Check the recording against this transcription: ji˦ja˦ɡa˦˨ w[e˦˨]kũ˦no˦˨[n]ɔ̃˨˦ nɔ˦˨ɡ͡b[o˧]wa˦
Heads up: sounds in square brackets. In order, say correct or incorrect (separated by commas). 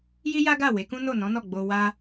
incorrect, correct, correct